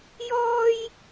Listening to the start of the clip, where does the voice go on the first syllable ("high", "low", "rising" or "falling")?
high